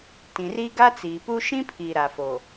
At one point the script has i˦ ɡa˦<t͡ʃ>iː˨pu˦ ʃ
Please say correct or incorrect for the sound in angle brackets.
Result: incorrect